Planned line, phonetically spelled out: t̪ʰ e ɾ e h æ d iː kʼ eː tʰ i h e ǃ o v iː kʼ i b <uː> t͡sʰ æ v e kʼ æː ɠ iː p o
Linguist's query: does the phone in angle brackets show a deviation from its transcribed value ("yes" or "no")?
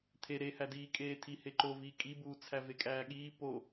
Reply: no